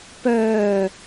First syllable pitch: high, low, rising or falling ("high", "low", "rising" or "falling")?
low